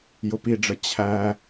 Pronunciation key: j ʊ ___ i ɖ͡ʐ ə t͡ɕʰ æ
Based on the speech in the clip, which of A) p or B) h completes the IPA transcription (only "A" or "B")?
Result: A